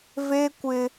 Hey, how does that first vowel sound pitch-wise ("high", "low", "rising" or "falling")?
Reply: high